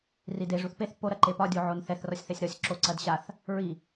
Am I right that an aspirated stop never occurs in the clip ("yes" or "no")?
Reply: yes